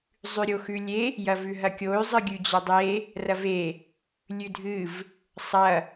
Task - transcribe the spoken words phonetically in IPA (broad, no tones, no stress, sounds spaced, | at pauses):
zˤ ʉ ɾʲ o x ʉ lʲ e | j ɐ v ʉ ɦ ɐ kʲ o y̯ zˤ ɨ ɡʲ ʉ d͡ʑ ɐ dˤ e | r ɐ v e | lʲ ʉ dʱ ɨ v | sˤ ɐ